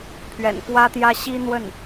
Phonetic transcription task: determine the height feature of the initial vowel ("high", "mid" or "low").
mid